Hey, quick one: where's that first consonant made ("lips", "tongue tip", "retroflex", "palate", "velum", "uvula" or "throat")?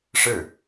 retroflex